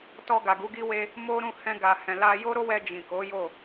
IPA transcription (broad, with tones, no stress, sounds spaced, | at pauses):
t ɔ˧ ɡ a˨ ɡ u˨˦ ɡ i˦ w e˧ | m o˦ ɾ ũ˦˨ h ɛ̃˧ ɡ a˨ h ɛ̃˨ l a˧ j o˦ ɾ o˦ w ɛ˧ d͡ʒ ĩ˨ k o˨˦ j o˦˨